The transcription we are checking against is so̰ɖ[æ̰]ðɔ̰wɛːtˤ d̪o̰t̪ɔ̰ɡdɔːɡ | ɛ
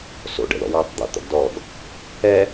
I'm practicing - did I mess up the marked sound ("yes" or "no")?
yes